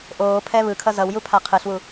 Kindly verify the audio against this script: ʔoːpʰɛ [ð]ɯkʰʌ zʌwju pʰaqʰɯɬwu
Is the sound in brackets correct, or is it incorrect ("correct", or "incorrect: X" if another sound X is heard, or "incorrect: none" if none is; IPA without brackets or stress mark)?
incorrect: β